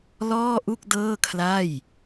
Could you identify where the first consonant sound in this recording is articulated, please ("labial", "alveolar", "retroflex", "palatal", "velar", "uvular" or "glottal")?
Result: alveolar